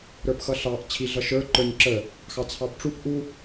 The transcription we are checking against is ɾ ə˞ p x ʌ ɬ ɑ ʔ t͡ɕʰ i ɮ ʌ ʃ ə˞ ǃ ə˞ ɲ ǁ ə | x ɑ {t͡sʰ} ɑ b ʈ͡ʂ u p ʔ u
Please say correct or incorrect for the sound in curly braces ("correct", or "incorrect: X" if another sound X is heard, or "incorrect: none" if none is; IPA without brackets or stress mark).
correct